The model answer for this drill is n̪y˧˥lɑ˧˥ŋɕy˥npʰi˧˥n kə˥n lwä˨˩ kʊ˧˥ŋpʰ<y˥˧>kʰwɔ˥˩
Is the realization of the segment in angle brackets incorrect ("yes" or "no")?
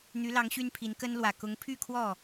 no